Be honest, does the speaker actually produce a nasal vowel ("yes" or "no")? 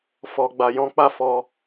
yes